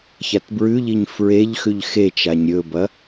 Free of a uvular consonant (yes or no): yes